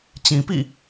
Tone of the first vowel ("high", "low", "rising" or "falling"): low